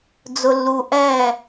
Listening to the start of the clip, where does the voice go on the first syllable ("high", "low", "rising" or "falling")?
low